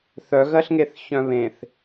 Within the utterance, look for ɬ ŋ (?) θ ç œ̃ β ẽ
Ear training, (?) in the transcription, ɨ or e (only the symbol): e